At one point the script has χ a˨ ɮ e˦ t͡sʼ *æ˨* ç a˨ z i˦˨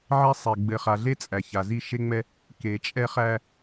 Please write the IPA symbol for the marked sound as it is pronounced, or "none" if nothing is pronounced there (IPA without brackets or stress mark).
æ˨